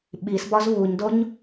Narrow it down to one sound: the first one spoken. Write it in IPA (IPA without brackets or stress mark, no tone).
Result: ɓ